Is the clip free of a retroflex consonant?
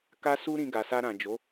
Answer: yes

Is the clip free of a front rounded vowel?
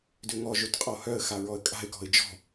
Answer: no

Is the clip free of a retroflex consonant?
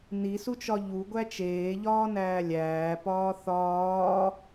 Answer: yes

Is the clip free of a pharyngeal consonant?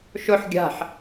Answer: no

